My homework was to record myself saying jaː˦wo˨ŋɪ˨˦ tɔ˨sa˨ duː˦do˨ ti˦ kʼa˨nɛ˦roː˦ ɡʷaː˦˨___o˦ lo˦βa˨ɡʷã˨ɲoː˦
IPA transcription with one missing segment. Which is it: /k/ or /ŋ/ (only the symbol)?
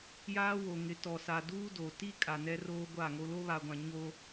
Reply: ŋ